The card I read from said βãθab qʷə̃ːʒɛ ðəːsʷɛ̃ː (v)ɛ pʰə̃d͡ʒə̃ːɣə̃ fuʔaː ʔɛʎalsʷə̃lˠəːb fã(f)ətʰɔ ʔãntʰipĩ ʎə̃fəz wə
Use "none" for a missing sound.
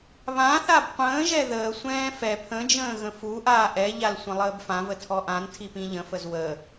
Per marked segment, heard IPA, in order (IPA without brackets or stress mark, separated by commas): f, v